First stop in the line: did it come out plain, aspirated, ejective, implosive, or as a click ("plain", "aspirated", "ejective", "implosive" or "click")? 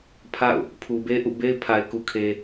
aspirated